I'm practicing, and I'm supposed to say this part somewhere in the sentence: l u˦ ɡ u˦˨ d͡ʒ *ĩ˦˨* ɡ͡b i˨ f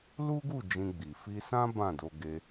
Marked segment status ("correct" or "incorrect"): incorrect